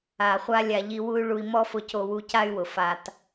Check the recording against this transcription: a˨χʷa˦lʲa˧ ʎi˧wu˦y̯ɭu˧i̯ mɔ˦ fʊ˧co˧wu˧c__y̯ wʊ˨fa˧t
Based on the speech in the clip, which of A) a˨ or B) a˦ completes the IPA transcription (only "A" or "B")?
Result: B